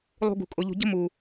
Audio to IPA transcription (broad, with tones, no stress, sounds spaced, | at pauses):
lˠ ṳ˧ ɡ ṳ˨ kʼ ʊ˨ ʎ ṳ˨ ɟ ə̤˦ m u˨